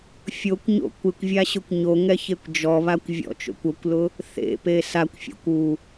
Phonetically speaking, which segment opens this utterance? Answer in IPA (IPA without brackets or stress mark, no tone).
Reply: fʲ